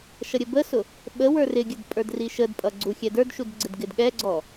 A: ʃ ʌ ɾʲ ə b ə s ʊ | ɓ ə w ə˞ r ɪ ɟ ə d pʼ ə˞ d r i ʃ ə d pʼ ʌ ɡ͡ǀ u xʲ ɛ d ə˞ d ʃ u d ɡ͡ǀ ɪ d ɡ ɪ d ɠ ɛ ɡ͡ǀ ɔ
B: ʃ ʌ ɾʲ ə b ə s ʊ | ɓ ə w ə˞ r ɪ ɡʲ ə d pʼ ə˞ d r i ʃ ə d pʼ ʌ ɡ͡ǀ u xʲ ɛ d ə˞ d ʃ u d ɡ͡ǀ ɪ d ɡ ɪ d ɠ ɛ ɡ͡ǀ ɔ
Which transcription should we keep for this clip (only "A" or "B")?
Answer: B